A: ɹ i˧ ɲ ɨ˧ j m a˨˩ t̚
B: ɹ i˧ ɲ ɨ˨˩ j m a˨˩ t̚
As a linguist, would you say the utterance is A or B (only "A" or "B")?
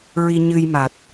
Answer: A